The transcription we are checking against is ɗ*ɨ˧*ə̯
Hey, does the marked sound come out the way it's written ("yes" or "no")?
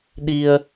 no